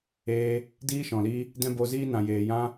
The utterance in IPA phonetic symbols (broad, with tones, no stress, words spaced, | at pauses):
eː˧ | diː˦ʃɔ̃˨li˧ | dɛ̃˦bo˧ziː˦nã˨ jeː˨jã˦